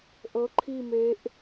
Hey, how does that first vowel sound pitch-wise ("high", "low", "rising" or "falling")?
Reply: rising